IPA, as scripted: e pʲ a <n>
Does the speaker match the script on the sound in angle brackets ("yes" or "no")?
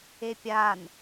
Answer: yes